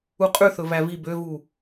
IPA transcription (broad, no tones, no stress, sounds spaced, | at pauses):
u qʼ ʉ θ ɵ v æ v i b ø v u